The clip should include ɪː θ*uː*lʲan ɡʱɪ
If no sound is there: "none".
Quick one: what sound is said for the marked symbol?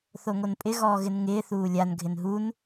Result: uː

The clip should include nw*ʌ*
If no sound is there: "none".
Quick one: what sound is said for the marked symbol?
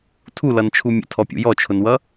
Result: ʌ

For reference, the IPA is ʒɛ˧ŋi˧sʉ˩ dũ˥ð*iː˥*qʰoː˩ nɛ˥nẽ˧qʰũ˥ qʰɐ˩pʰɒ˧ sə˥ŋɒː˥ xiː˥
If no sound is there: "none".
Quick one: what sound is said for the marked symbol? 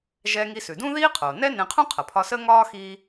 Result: iː˥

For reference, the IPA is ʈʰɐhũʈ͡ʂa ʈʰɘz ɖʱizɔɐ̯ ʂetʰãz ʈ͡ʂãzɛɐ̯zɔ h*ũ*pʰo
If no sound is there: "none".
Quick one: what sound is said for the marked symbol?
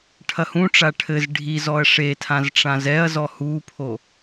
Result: u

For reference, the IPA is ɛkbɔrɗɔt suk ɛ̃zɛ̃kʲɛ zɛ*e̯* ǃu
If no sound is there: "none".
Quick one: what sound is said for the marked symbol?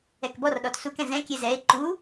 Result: e̯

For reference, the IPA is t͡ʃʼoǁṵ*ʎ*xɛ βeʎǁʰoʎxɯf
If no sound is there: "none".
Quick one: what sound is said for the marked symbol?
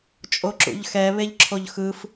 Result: ʎ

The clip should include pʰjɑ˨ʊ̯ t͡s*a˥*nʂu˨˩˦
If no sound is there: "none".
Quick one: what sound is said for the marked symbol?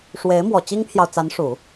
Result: a˧˥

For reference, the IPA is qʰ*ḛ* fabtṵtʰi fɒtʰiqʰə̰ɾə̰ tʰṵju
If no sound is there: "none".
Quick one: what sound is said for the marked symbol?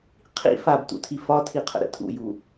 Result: ḭ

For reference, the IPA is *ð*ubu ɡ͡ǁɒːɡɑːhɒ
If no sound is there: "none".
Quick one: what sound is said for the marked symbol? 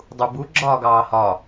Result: dˤ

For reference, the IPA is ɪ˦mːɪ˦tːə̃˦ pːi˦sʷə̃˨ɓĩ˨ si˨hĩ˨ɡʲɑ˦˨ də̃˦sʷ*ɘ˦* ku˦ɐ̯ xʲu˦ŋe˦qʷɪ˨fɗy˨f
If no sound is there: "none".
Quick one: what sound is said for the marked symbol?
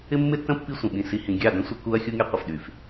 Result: ɘ˦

